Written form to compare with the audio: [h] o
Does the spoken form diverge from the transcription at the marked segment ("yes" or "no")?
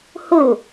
no